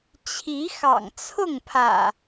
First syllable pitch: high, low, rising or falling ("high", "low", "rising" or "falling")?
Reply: rising